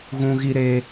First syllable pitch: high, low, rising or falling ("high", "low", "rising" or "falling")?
high